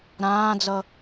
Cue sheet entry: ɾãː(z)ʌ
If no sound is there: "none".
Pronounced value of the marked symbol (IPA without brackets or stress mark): d͡z